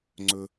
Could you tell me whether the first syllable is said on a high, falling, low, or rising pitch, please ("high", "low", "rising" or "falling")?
low